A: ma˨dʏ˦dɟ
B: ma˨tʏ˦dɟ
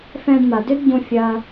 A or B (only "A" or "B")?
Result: A